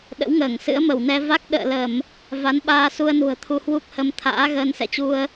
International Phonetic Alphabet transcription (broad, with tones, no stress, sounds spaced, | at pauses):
ɗ ə̰˧˥ w ŋ əː˧˩ ŋ s ɨ̰˧˥ ə̯ m ə˧˩ w n ɛ˧ v a˦˥ k̚ ɗ ə̰ː˧˨ l ə˧˩˨ m | v a˨˦ n ɓ aː˧ s u˧ ə̯ n ṳ˨˩ ə̯ t̪ʰ u˧ h w u˦˥ k̚ h ə˧ m t̪ʰ a̰ː˧˥ ɣ əː˧ n s ɛ̰˧˨ t͡ɕ u˧ ə̯